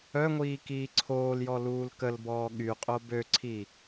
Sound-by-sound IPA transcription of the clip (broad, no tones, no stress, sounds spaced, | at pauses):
œ ŋʷ iː k iː ǀʰ oː l j ɔ l uː l k ə l b ɔː ɠ y qʼ o b ø ǀʰ i